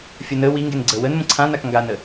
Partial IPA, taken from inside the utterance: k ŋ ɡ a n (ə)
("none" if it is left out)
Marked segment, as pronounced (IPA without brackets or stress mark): ə